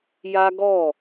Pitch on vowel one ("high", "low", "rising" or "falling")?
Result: high